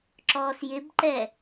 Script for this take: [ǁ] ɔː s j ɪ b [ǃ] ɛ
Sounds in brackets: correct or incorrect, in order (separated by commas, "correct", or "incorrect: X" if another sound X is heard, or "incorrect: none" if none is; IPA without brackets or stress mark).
correct, correct